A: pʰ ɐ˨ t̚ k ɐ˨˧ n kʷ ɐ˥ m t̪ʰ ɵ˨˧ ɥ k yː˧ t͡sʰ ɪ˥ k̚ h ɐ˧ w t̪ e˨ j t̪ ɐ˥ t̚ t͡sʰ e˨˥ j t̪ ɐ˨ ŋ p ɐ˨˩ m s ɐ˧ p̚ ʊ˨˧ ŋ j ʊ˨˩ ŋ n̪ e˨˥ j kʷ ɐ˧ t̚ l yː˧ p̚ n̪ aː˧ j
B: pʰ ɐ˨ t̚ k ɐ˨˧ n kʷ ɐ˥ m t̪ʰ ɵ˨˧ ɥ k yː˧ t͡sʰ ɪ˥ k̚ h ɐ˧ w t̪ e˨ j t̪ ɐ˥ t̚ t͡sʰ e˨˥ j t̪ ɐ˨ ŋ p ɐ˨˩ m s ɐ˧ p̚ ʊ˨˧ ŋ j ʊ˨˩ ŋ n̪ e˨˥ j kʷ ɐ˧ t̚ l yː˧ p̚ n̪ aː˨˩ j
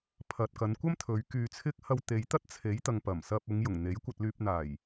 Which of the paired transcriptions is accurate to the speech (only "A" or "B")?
B